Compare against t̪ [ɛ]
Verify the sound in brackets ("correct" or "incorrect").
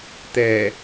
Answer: correct